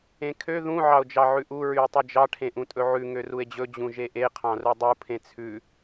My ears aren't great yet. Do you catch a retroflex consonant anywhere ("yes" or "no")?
yes